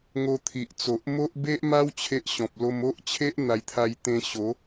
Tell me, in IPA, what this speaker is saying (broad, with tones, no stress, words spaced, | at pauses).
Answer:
ŋo˧ t̪ʰi˨ʔt͡so˨ʔ mo˦ʔ be˦ʔ ma˦w t͡ɕʰe˦ʔɕɔ̃˨p̚ lo˧mo˦ʔ t͡ɕʰe˦ʔ n̪a˧jt̪ʰa˧jt̪ẽ˧ɕo˨˦